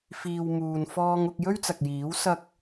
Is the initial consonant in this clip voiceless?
yes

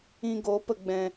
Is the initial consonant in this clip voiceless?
no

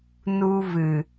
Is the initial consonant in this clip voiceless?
no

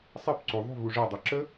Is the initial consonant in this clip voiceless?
yes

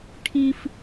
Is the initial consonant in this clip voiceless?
yes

